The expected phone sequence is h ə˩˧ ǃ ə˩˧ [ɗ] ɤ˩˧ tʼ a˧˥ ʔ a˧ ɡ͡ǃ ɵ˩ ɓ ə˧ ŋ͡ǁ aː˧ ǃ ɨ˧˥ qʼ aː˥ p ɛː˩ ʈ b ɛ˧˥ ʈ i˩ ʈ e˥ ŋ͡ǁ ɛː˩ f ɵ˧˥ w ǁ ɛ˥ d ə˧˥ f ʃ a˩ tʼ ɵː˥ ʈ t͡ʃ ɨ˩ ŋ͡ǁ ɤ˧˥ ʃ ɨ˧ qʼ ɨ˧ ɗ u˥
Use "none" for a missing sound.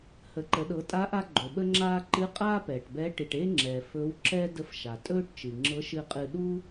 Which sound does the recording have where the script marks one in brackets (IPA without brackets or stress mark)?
ɗ